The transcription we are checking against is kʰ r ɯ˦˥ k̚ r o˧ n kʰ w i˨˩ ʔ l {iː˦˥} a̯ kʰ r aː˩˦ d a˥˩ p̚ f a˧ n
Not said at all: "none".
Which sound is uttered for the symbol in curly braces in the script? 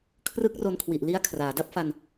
i˦˥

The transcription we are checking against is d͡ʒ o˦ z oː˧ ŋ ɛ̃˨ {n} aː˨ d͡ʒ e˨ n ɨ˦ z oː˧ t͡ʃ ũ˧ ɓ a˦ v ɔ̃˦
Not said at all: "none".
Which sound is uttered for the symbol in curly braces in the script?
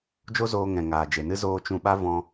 ŋ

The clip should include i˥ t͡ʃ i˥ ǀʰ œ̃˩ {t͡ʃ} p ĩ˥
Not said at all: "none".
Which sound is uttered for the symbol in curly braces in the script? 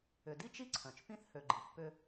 t͡ʃ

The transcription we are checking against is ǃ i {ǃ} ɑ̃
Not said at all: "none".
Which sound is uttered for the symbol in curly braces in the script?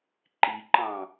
ǃ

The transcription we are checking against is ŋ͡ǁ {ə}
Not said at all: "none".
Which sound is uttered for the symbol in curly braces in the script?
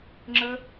ə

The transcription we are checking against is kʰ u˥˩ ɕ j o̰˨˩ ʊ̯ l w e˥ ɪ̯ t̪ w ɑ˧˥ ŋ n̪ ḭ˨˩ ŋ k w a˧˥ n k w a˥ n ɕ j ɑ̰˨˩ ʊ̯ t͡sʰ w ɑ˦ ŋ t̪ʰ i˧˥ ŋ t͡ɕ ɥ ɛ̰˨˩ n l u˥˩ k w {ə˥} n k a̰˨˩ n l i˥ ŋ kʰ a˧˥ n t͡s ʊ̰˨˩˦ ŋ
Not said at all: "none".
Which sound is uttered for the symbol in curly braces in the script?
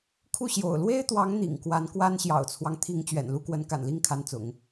ə˧˥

